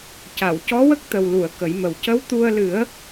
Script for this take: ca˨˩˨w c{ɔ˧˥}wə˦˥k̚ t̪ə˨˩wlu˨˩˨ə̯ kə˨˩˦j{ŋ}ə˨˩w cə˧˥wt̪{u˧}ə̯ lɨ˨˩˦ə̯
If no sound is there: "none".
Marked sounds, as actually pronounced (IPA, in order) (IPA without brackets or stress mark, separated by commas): ɔ˧˥, m, u˧